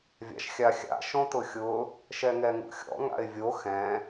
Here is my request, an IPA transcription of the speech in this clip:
vʲ a̰ ʃ xʲ a xʲ a̰ ʃ õ t ʊ xʲ ʊ | ʃ ɛ ŋ ɛ ŋ ṵ xʲ ɔ̰ ŋ a̰ ɪ̯ vʲ o x ɛ̃

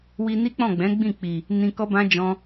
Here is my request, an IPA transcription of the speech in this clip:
w i˧ n i˦ k͡p ɔ̃˦˨ ɡ͡b ɛ̃˨˦ ɡ͡b ĩ˦˨ k͡p i˨ | n ĩ˧ k ɔ˦ b ã˦ d͡ʒ ɔ̃˦

